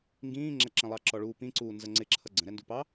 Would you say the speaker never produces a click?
no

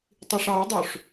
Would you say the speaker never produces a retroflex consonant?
no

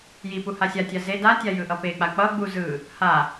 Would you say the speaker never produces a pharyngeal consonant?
yes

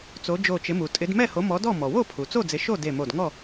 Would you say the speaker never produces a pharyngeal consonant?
yes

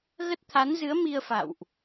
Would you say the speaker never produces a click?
yes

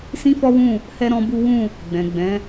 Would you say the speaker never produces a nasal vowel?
no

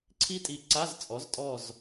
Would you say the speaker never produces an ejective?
no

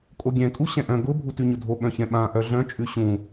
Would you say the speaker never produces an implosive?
no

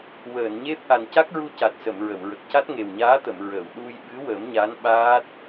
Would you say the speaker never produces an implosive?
no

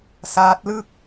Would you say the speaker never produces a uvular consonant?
yes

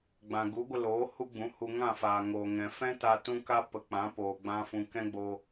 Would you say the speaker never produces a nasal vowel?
no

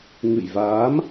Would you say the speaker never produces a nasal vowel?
yes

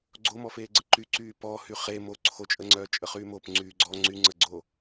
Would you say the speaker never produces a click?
no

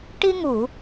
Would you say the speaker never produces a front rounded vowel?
yes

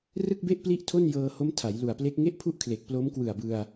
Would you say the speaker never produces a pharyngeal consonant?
yes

